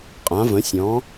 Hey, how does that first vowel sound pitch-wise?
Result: rising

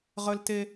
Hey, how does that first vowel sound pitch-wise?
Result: high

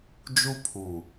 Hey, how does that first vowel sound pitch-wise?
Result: high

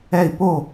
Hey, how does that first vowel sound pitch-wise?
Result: falling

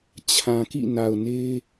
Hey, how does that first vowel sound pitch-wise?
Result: low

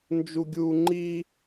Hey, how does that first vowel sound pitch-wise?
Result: high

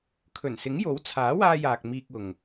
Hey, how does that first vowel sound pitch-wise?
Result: low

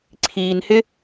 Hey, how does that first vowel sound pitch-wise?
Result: low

